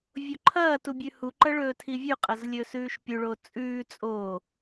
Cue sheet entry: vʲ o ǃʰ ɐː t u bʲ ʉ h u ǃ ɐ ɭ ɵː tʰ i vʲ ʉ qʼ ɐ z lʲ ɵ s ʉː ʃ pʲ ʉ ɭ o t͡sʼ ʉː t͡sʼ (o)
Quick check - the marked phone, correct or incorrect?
incorrect